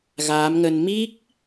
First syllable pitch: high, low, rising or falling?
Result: rising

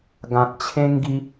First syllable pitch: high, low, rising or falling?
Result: low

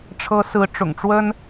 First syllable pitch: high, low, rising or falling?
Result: rising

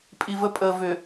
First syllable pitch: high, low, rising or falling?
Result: low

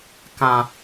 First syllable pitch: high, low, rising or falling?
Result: low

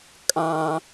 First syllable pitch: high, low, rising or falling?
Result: high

